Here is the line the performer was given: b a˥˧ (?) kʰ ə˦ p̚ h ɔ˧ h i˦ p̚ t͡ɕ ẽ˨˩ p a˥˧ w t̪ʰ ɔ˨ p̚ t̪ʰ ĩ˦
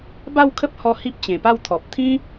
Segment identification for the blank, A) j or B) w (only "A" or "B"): B